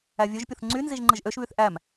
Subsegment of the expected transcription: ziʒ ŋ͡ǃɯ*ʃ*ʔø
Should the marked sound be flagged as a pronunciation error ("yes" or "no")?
yes